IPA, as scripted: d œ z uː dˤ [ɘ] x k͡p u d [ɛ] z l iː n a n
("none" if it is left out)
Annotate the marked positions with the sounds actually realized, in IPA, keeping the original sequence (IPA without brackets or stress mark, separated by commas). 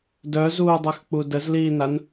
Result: ɛ, ə